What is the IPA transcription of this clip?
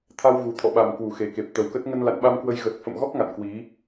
t̪ʰa˧w ɣu˨˩t̪ʰɔ̰˧˨ɓa˨˩m kwu˧˩xe˨˩ke˨˩p̚ t̪ə˨˩wkə˦˥t̚ ŋə˧nla̰˧˨nɓa˧mkwə˧j ɣə˨˩t̚fə̰˧˨mɣɔ˦˥k̚ ŋa̰˧˨nkwi˨˦

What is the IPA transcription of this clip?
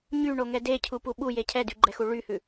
ɲyɳoŋɛ decʰupu ɓuje cʰɛdyɡ͡ǃɛxu ɭyhʉ

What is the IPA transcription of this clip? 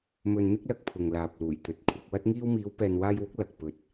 mɵ˧nn̪ɪ˥k̚lɐ˧k̚pʰʊ˨ŋ laː˨p̚luː˨˩jt̪ɵ˨˥t̚ kʷʰɐ˧k̚ wɐ˥t̚ŋiː˥w miː˨˧wpɛː˨nwaː˧jwʊ˨˥k̚ lɐ˨k̚ pɵ˧t̚

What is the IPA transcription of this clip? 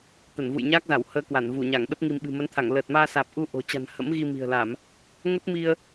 t̪ə˧˩nvṵ˧˨jɲaː˦˥k̚za˧˩w həː˧kwa˧˩nvu˧˩ɲa˧˩ŋ ɗə˦˥p̚ŋi˧m ɓɨ̤˨˩mə˨˦nt̪ʰa˧˩ŋ ləː˨˩t̚maː˧saː˨˩p̚ ʔu˧ʔo̤˨˩ t͡ɕa̤˨˩n hə̰˧˥mɣi˧mi̤˨˩ə̯la˧˩˨m | ŋə˦˥t̚ mi˧ə̯

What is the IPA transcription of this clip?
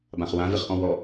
bãχwã vɪχʔɔ̃wɔ

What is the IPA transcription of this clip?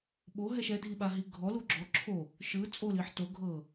ɓoɦɛʃ ɛdʱiɓaɦi ɡʱɔlu ɡ͡ǁɔ ǁʰo | ʃɯ t͡sʼoliħ to ɡʱɤ

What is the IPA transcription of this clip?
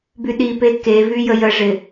byɗipe kevy jəjəʐɪ

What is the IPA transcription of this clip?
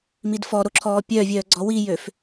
midfɔ ɾoǁʰɔːpʲœːvʲœː ɡ͡ǀɔwijøf

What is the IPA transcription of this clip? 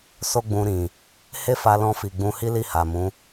so˦ɡ͡bũ˧ɾĩ˨ | he˦fa˧lɔ̃˧fi˨ ɡ͡bũ˧hi˦li˦˨ ha˨mũ˨˦

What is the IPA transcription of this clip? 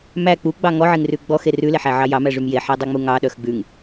mæ k͡puɡ͡bɑ ŋɔʕeŋrʉ ɡ͡bɔxe rʉleħæʕɑ jɑmæʐym jeħedˤiŋ͡mu ŋɑɗœx ɡ͡bʉŋ

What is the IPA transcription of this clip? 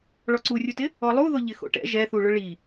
ɭɔǀurʲutɪ | ɔlˠuðʊ ʎɪxo̰ʈɛ̰ ʒɛθuɭʊ ɭi

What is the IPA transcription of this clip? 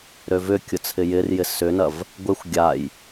ɾøvʏkʲʊ t͡sʰɪjɪrjɪ sʏnɐv | ɡʷexʷ ɡʲaj

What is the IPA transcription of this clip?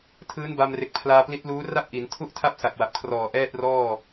tʰɯː˦˥nba˧mre˨˩k̚pʰlaː˧ pli˦˥t̚luː˦˥ ra˥˩p̚ʔi˩˦n tʰu˥˩ʔtʰa˥˩p̚ sa˨˩k̚wa˨˩p̚kʰrɔː˨˩ ʔɛː˥˩t̚rɔː˥˩

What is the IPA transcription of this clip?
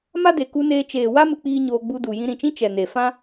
ma˦de˨ku˧neː˧ t͡ʃeː˨wa˦ mɨ˧k͡piː˦ɲoː˧ ɡ͡bu˧du˨ jĩ˧ɾĩ˨t͡ʃĩ˦ t͡ʃɛ˨ne˨fã˦

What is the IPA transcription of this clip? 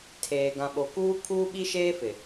tʰeː˨ ɡã˨ɓo˨kuː˦kʰuː˦ ɓi˦ʃeː˦ fɪ˨

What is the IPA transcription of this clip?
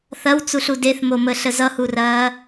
θɐwt͡suɬu deθmoməɬə zʌhurɐː

